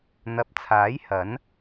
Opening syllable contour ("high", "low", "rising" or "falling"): low